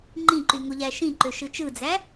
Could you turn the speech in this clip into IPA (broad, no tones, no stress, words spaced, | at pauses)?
ŋ͡ǃĩǃyŋoʎæ ʃĩǃøʃɯ t͡ʃɯd͡zæ